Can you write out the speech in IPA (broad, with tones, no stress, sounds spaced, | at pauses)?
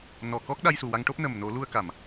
n ɔ˨˩ k ɔ˦˥ k̚ ɗ a˧ j s u˨˩ w a˧ ŋ ʈ o˦˥ p̚ n ə˨˩ m n o˨˩˦ l u˧ ə̯ k a˨˩˨ m